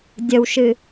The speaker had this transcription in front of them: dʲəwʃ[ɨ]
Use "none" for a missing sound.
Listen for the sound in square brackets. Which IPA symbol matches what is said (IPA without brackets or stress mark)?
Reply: ɨ